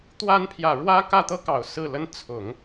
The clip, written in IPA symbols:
t̪ w a˧˥ n pʰ j ä˨˩ ɻ w ä˥ k ä˥˩ t̪ ɤ˥ k ɑ˨˩ ʊ̯ s ɹ̩˥˩ l ə˥ n t͡sʰ ʊ˨˩˦ ŋ

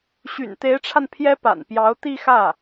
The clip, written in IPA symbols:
ɕ y̰˨˩ n t̪ e˧˥ ɪ̯ ʈ͡ʂʰ a˧ n pʰ j ɛ˧˥ p a̰˨˩ n p j ɑ˧˥ ʊ̯ t̪ i˥˧ x ä˥˩

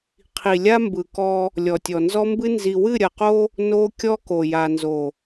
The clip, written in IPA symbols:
qʰ i˨ lʲ a˦ m b ɯ˨ k ɔ˦ | lʲ ɔ˨ tʲ ɔ˨ n z ɔ˦ m b ɨ˦ n z i˨ w ɨ˦˨ ɾʲ ɐ˨ q o˦ | n o˦ kʲ ɔ˦ k o˨ j a˨ n z o˨

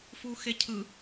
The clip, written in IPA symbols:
f u x e cʰ ɯ

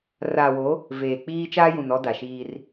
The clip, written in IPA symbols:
r aː˨ w o˨˦ | v eː˨ k͡p iː˦ t͡ʃ aː˦ j ũ˨ n ɔ˦ d a˨ ʃ iː˦ r

